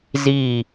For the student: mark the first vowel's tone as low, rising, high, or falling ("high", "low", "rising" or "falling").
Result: falling